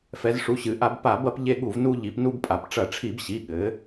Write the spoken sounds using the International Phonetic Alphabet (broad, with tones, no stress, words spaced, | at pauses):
fɛ˩˧zʂu˩˧˩ɕɨ˩˧ʔa˧˩˧b pa˧˩˧bɐ˧p ʎe˧ɠu˧˩˧v nu˧ ʎi˩˧pnu˧bpʼa˩˧p ʈ͡ʂɐ˧˩˧ʈ͡ʂʰi˧˩˧bɕi˩˧˩ɠɘ˩˧